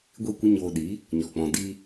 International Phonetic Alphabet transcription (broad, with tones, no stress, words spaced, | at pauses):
ɡʷi˦˨kʷə˦ɲoː˧ɗi˨˦ | ɲɔ˨k͡pɔ̃˨ di˧